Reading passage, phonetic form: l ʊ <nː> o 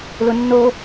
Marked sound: correct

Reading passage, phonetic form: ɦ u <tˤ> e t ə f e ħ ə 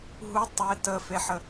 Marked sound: correct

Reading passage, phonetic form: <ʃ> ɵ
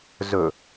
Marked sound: incorrect: z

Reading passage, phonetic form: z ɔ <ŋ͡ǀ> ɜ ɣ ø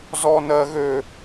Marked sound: incorrect: n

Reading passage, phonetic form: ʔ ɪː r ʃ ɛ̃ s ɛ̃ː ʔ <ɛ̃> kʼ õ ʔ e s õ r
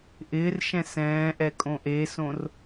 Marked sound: incorrect: ɛ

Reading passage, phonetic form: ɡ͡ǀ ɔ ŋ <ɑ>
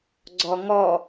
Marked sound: incorrect: ɔ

